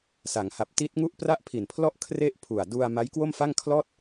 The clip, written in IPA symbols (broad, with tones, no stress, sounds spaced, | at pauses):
s a˩˦ ŋ h a˨˩ p̚ t i˦˥ t̚ ŋ u˥˩ ʔ p r a˥˩ ʔ pʰ i˨˩ n pʰ l ɔ˥˩ ʔ kʰ r e˥˩ ʔ pʰ u˨˩ a̯ d u˧ a̯ m a˦˥ j k w o˥˩ m f a˥˩ ŋ kʰ l ɔː˥˩ t̚